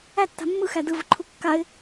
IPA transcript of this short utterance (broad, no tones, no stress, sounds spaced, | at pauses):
æ tː a̤ mː ɯ x æ d ɯ v ɯ ǃʰ u kː a ɪ̯